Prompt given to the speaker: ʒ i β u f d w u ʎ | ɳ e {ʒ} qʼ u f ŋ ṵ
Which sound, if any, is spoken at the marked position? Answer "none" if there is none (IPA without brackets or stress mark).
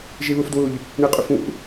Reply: none